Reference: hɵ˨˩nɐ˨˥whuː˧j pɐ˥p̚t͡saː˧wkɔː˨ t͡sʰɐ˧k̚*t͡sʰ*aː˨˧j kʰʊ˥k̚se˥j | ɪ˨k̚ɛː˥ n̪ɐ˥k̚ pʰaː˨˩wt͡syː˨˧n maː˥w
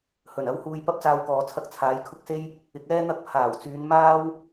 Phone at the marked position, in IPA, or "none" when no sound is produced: t͡sʰ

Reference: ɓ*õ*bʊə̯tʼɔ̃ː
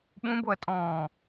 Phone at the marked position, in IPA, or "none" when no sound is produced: ũ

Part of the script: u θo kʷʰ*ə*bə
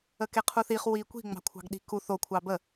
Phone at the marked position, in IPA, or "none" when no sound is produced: ɑ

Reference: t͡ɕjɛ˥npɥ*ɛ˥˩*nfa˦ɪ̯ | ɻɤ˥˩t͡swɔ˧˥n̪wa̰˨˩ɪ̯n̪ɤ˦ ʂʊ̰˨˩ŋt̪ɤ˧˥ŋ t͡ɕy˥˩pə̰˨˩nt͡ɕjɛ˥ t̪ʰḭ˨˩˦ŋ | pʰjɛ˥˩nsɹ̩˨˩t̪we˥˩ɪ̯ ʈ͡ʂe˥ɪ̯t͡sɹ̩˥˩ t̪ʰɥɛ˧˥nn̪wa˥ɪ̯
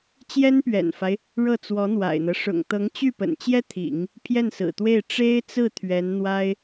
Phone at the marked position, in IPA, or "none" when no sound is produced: ɛ̰˨˩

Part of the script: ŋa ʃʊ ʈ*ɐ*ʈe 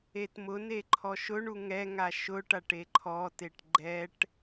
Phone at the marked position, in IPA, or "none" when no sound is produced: a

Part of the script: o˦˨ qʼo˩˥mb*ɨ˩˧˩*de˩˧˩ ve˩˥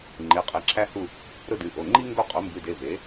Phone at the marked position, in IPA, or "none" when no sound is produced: ɨ˩˧˩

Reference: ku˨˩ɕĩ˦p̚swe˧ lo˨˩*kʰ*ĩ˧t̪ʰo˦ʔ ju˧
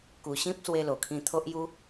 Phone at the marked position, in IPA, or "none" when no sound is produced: kʰ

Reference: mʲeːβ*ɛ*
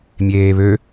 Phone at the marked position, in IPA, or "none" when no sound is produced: ø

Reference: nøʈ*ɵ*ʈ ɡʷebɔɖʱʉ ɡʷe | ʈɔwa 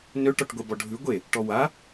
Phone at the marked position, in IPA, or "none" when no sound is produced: ɔ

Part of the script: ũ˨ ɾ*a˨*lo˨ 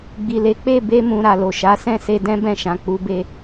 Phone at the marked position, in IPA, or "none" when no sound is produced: a˨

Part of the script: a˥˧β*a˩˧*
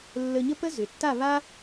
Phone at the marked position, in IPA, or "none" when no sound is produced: a˥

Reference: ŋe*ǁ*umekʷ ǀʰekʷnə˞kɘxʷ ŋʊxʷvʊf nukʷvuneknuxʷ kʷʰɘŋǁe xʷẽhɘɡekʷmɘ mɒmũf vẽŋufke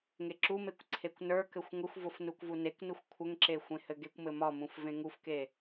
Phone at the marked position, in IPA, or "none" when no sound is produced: ǁ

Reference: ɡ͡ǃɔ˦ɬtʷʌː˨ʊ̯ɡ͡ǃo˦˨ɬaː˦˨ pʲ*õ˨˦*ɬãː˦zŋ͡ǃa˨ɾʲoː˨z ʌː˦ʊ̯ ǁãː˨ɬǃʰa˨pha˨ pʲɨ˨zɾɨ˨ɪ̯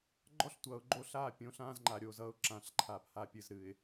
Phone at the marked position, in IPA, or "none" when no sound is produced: õ˨˦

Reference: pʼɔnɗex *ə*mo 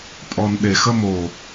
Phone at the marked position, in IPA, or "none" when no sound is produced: ə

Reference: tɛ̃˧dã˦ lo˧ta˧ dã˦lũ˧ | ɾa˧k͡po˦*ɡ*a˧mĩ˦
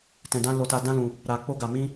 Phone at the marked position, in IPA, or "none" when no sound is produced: ɡ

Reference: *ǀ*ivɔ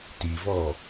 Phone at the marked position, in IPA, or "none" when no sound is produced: t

